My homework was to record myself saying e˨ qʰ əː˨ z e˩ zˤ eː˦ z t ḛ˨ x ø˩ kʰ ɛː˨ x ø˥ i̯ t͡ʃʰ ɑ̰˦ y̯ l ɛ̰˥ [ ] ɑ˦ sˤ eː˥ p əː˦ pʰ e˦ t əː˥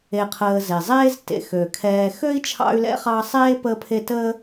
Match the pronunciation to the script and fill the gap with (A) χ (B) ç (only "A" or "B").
A